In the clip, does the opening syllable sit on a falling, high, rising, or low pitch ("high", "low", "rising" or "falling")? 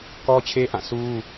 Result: high